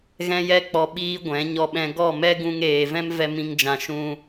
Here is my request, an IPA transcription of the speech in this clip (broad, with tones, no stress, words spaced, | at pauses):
ɣɛ̃˦jɛ˦k͡pɔ˧ ɓiː˦ɡʷɛ̃˨˦ ɲɔ˧ɓɛ̃˧ ɡɔ˦˨mɛ˦ ɡũ˧ŋeː˨vɛ̃˦mvɛ˧ mĩ˧ŋd͡ʒã˨ ʃũ˦